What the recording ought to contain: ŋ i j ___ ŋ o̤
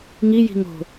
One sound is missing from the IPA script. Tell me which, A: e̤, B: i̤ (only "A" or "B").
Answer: B